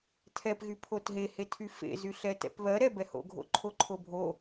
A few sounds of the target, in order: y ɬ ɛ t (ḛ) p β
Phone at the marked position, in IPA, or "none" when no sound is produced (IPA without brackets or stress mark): ɛ̰